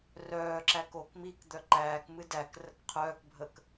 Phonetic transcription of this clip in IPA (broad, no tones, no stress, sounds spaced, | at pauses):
r œː ǁ æ k o k m i k d̪ œ ǃ æː k m ɨ d æ k r ə k qʰ œː k bʱ ə k